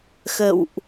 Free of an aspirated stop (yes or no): yes